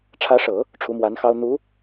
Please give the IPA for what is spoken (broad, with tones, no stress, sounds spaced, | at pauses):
ʈ͡ʂʰ ä˧˥ ʂ ɤ˨˩˦ | ʈ͡ʂʰ u˧˥ m w a˧˥ n x ɑ˥ ʊ̯ n̪ u˧˥